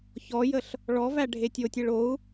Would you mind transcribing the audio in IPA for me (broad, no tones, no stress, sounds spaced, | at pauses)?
ç ɔ j ə ɬ | ɭ ɔ v æ ɖʱ e tʲ o tʲ e ɭ o u̯